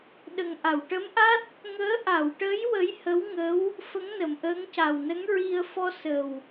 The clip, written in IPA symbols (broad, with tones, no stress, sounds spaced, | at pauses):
ɗ ə˨˩ ŋ ʔ a˨˩˨ w ʈ ə˧˥ m ʔ a˦˥ t̚ | ŋ əː˧˥ ʔ a˨˩˨ w ʈ ə˧˥ j w ə˧˥ j h ə˧˥ w ŋ ə˧˥ w | f ə˧˥ ŋ n ə˨˩˨ m ʔ əː˧˥ ŋ c a˨˩ w n ə˧˥ ŋ ɹ i˧ ə̯ f ɔ˧ s ə˨˩ w